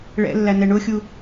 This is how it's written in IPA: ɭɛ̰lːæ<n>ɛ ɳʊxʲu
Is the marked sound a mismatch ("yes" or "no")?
no